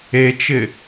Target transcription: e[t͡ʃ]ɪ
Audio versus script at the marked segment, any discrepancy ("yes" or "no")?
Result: no